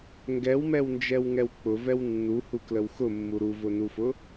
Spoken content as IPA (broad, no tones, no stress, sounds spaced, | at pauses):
ŋ ɡ ɛ w m ɛ w n d͡ʒ ɛ w ŋ ɛ w k͡p ʊ v ɛ w nː u h u k l ə w x ʊ mː u ɾ u v ʊ n u f ʊ